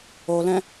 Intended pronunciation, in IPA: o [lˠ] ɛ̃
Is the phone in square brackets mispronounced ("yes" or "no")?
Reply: yes